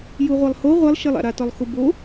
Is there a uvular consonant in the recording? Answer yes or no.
yes